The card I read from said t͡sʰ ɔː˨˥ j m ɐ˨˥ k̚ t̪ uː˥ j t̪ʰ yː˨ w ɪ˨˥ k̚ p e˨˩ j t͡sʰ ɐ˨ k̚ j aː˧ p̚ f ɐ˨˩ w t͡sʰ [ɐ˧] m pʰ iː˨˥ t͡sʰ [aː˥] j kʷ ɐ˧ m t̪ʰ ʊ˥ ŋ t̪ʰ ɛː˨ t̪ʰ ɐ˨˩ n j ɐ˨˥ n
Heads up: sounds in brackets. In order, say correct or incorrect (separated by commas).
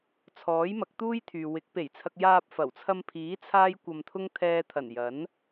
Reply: correct, correct